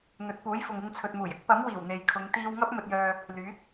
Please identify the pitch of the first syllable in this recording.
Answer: rising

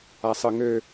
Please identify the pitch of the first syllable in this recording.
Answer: low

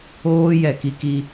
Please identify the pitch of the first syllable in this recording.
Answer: high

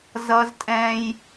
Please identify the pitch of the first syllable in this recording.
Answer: high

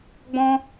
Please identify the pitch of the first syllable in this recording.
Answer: high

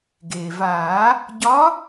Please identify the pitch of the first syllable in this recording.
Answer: low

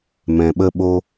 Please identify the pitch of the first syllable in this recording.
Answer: low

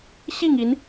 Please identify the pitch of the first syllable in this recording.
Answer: falling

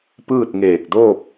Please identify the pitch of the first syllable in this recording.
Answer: falling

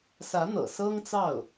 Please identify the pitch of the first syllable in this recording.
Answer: rising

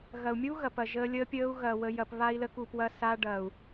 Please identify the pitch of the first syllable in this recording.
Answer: low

